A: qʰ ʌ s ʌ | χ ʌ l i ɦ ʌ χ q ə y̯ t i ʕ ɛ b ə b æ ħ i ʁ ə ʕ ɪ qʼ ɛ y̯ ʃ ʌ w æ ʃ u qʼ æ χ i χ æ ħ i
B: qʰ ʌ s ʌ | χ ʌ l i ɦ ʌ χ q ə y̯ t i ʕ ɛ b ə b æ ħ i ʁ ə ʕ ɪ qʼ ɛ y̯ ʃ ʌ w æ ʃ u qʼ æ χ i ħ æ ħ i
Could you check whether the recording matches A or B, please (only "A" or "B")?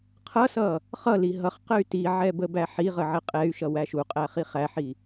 A